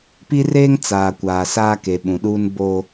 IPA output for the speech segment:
pi˦reː˦ŋ t͡saː˨kʷaː˨saː˦ ke˨ɓũ˨ɗuː˦n boː˦

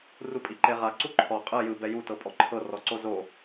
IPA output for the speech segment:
rupʼiǃeʁa ǀuǃʰɔ qʼɯ jɯbɛ jutɤ pʼɔǃʰɤrɔǀo zo

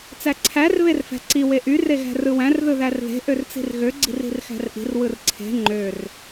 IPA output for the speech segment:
t͡sæǀʰær βerfæ̤ǀi weʔy reɣæ̤rɯwæ̃r ðɯðærðe̤ ʔørt͡si̤rɣø ɡ͡ǀi̤ri̤rxæ̤rʔi̤r wɯrǀʰe̤ ŋ͡ǃør

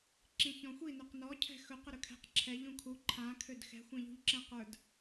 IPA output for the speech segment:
ǁĩçɔ̃xʷi nøqnɔ cʰɛ̤xɵ qɵɾɵkʰɛ̤q ǁʰɛʎ ũkʰu ǃʰãkʰød xɛ̤xʷɛ̃ʎṳʎǁɛ̃ qə˞d

